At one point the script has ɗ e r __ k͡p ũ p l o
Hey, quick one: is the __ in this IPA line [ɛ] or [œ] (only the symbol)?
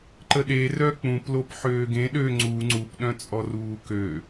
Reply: œ